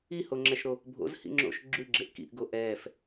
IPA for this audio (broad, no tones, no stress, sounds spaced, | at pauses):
i h o ŋ͡ǁ ɛ ʃ ɾ o | bʱ o̰ z h ḭ ŋ͡ǁ o̰ ʃ ɡ͡ǁ ʉ ɡ͡ǁ e ʔ k ḭ ʔ ɡ o ʔ ɛː f